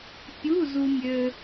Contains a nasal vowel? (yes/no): no